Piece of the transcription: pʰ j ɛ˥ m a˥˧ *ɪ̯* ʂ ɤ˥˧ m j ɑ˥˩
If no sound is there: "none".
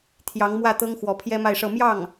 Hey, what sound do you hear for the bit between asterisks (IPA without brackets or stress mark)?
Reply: ɪ̯